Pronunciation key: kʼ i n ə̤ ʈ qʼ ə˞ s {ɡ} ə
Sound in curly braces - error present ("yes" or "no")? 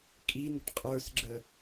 yes